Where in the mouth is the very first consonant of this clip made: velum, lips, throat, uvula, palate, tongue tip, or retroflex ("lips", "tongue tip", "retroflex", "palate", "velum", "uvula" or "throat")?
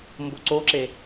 lips